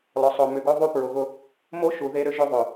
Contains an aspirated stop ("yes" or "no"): no